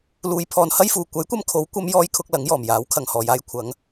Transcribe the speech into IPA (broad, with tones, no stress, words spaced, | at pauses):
luː˨˧jpʰɔː˨nhɐ˥jfuː˨ kʷɐ˨˥jkʷɐ˧m kʰo˨˥w kʷɐ˨˧mjɔː˨˧jkʰʊ˨k̚ lɐ˨˥ŋjɔː˨˩mjaː˨˥w kʰɐ˨˩ŋ hɔː˨˩jaː˧j kʷʰɐ˨˧ŋ